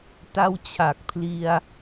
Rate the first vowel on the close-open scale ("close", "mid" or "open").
open